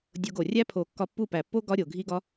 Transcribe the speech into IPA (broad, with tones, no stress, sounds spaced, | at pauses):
dʲ o˧ ɡ o˨ rʲ æ˦ pʰ o˨ kː ɒ˧ pː u˦˨ p æ˨ pː o˦ ɡ ɒ˦ ɾʲ o˨ ɡʱ i˦ ɡ ɒ˦